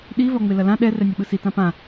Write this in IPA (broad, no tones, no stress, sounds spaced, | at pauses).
ɗ i v ɒ ŋ͡m e l ɐ l ã ɗ ɛ r ɛ nʲ ɒ ɓ ɯ s i t ã p ã